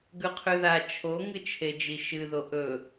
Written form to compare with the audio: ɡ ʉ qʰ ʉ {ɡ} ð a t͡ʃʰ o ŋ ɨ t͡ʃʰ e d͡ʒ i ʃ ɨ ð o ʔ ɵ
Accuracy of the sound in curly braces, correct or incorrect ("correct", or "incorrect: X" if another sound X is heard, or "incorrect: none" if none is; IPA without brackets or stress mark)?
incorrect: none